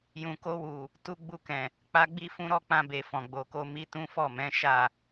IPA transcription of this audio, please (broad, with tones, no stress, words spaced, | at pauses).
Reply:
jũ˨ko˧wu˨ | tu˧ ɡ͡bu˧kɛ̃˨ | k͡pa˧ɡ͡bi˦ fũ˧ ɾɔ˧k͡pã˧be˨ fɔ̃˨ɡ͡bo˨ko˧ mi˧tũ˦fɔ˦˨ mɛ̃˨˦ʃa˦˨